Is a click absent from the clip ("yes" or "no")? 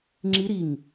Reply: no